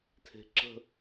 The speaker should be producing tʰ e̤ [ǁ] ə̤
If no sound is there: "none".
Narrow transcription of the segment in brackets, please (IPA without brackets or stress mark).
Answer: ǁ